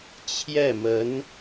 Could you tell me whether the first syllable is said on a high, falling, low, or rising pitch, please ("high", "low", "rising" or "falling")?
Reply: falling